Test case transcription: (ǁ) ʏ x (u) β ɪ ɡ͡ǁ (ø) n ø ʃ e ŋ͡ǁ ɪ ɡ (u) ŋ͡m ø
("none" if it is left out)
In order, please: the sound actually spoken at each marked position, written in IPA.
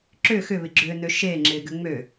ǁ, ʏ, ø, ʏ

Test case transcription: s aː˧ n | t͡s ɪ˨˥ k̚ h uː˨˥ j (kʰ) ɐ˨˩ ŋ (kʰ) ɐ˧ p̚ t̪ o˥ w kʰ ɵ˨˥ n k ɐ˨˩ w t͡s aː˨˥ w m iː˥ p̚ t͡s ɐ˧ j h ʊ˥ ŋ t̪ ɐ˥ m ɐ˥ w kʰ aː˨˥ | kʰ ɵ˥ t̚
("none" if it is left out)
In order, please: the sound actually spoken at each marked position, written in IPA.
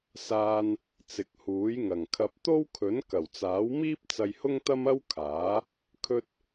ŋ, kʰ

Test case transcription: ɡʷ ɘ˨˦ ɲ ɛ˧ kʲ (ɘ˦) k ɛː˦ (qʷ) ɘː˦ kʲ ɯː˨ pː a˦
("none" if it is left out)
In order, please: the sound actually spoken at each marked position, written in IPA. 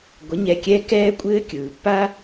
ɛ˦, kʷʼ

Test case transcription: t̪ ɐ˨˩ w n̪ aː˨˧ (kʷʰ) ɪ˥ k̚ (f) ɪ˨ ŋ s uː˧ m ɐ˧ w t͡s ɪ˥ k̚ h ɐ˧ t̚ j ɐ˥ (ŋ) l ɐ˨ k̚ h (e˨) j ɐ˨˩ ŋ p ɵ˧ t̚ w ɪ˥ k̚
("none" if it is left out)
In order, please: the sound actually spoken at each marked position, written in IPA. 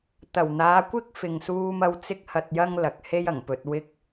kʷ, f, ŋ, e˥

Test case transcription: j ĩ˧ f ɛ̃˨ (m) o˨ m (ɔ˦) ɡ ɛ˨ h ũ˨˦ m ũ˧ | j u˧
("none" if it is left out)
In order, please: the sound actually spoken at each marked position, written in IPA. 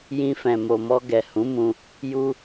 m, ɔ˧

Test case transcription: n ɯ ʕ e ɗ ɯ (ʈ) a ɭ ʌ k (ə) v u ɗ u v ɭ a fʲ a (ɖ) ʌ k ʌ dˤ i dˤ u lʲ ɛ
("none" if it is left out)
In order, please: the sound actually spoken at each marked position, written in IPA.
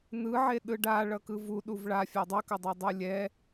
ɖ, ɯ, dˤ

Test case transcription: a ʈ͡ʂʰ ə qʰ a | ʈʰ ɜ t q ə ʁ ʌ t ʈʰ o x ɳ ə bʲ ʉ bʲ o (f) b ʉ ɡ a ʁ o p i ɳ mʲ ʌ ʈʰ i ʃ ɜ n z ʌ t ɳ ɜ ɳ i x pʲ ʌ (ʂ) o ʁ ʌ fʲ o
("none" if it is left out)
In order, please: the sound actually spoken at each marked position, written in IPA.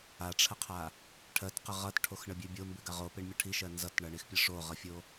m, ʂ

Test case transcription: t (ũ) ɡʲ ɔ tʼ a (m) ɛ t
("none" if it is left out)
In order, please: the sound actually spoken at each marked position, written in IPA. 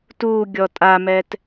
u, m

